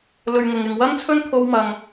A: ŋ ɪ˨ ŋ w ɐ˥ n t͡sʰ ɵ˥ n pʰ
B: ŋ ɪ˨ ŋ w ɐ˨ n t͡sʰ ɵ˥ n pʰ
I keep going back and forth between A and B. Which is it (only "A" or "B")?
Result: A